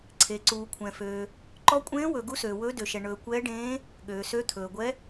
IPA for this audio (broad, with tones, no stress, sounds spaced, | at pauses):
ǀʰ e˨ ǀ uː˨ kʷʰ ɛ̃˨ f øː˨ | ǃ ɔ˧˥ kʷʼ ẽː˧˥ w ɵ˨ ɡ u˧˥ s øː˨ w ɵː˧˥ d ø˨ ʃ ɛ˨ ɳ ɵː˨ kʷ ɛː˧˥ ɖ ẽː˧˥ | ɠ øː˨ s ø˧˥ t̪ʰ ɵː˨ ɡʷ ɛ˧˥